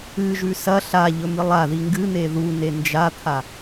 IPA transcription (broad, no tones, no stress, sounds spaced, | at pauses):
ɨ ʒ ʉ s ɐ ɬ a ʎ ɵ m ɨ lˠ a ð i ŋ ɡ ɨ n̪ e ð u n e n d͡ʒ a t̪ʰ a